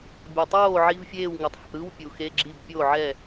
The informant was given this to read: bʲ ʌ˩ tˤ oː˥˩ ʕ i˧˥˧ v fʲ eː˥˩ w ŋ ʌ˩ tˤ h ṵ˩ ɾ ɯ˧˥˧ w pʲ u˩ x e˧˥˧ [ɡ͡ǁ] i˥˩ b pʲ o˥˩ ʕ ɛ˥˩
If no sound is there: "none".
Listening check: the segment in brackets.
ɡ͡ǁ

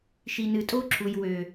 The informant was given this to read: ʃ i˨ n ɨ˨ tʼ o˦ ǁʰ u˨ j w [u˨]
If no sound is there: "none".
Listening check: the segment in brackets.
ø˨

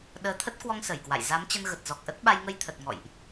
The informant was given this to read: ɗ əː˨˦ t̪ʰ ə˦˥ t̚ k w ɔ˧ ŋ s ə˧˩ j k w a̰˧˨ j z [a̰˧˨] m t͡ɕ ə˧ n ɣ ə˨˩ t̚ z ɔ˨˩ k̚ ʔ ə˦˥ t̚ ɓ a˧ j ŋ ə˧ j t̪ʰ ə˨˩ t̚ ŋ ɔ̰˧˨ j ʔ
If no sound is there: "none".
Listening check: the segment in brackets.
a˨˦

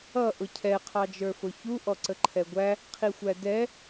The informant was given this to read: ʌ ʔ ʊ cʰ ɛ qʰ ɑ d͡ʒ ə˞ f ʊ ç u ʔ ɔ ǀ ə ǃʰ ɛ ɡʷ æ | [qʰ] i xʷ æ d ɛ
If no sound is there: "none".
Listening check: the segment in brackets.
qʰ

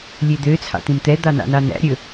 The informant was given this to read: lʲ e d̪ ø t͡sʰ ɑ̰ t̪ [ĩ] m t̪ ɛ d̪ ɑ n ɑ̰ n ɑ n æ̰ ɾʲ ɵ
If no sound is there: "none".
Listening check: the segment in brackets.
ĩ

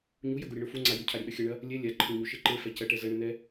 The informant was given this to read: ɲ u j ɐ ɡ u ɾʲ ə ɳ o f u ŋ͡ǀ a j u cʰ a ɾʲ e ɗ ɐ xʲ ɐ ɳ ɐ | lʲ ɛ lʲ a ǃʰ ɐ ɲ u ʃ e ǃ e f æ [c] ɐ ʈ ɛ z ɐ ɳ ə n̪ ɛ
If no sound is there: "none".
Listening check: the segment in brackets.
c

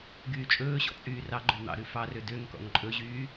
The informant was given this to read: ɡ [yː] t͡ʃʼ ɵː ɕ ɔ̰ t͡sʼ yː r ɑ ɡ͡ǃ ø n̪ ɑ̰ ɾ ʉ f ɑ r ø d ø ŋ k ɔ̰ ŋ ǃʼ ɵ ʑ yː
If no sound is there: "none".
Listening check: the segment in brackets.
yː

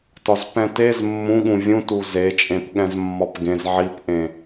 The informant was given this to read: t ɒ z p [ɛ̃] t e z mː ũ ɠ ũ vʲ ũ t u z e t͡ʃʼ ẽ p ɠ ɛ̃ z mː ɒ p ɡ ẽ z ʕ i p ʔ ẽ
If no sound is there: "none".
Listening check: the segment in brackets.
ɛ̃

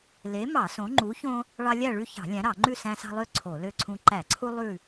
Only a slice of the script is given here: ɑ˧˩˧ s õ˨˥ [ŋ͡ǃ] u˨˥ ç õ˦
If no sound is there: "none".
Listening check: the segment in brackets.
ŋ͡ǃ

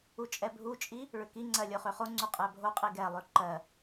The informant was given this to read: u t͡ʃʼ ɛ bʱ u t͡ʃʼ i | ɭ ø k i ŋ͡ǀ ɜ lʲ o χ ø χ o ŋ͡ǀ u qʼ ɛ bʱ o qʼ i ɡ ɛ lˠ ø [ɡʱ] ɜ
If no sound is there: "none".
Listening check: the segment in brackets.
ǃ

